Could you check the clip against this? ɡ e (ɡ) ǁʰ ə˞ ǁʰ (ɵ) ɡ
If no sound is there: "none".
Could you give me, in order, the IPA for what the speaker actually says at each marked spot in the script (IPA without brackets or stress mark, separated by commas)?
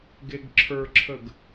ɡ, ə